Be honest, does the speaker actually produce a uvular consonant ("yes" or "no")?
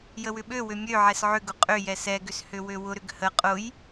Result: yes